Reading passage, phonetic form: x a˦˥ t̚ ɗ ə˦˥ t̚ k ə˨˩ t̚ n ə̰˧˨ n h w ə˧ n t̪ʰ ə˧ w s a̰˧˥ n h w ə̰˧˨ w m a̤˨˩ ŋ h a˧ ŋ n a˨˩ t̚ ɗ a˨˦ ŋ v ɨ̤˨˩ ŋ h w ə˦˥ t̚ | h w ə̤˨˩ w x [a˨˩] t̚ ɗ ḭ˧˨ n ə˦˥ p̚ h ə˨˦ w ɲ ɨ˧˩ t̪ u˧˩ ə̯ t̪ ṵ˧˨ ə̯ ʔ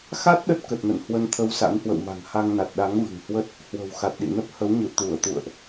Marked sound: correct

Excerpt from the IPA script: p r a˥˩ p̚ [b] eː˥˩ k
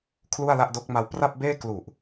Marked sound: correct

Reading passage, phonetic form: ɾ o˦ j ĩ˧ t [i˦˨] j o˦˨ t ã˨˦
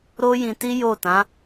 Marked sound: incorrect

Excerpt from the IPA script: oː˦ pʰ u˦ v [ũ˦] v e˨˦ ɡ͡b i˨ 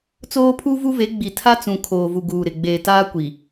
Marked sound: incorrect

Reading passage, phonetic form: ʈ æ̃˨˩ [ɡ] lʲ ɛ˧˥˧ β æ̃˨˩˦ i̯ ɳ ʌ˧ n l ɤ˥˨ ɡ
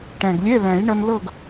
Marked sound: correct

